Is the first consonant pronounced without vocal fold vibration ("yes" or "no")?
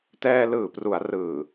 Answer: yes